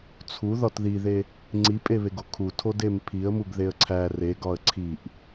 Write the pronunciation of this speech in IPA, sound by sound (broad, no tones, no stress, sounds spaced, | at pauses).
t͡sʰ u ð ɒ t ð i ð e | ŋ͡ǀ i pʼ e β e ɡ o kʰ u tʰ o d e m pʰ i ə̯ m u ɡ ð e ə̯ ǀʰ æ r e ɡ ɒ ə̯ ǀʰ i ʔ